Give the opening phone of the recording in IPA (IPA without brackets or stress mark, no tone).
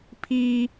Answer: pʰ